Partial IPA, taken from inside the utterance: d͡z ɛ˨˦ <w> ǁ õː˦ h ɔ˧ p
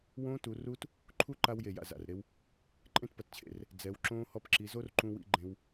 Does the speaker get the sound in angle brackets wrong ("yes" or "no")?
no